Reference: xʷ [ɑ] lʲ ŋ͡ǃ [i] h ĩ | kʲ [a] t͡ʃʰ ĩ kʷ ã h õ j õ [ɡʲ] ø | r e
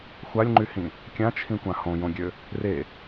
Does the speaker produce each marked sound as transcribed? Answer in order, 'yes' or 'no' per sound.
no, no, no, yes

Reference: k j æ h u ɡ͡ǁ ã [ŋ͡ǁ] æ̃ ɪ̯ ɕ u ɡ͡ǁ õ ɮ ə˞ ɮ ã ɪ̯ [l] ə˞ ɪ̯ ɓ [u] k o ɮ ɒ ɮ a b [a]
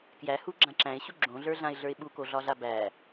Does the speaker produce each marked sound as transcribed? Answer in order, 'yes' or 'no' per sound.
no, no, yes, no

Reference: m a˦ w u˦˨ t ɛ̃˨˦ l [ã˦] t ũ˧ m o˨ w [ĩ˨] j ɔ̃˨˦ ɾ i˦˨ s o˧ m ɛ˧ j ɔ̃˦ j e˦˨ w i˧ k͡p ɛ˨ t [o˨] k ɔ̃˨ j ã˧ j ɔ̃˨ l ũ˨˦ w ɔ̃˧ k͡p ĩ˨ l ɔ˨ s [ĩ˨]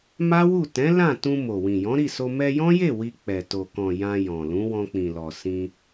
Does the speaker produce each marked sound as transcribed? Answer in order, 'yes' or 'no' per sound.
no, yes, yes, no

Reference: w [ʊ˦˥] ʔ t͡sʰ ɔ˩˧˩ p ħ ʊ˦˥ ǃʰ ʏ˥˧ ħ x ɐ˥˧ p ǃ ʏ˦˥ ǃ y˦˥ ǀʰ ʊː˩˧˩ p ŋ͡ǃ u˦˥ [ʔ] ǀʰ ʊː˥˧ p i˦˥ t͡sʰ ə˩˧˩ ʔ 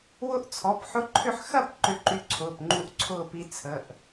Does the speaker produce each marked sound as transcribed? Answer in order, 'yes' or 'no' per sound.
yes, yes

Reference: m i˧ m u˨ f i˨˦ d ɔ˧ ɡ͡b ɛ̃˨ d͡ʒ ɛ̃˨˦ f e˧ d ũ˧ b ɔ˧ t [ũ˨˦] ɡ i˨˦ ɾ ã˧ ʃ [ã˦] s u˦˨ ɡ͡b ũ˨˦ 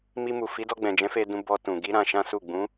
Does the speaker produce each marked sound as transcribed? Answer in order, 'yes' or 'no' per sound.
no, yes

